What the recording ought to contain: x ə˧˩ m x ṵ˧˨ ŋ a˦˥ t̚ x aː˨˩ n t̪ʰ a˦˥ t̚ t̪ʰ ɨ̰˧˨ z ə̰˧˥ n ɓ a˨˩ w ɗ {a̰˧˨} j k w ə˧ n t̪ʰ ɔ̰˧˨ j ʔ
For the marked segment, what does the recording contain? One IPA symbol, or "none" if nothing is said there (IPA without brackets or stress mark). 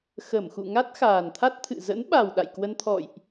a̰˧˨